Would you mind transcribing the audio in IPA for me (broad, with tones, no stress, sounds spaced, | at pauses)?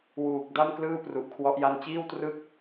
w uː˨˩ k̚ d a˥˩ m k l ɯː˥˩ p r u˨˩ ʔ kʰ w ɔ˦˥ ʔ j a˥˩ n t͡ɕ iː˥˩ w t r ɯ˥˩ k̚